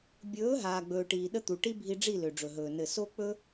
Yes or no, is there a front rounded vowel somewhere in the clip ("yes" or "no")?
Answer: yes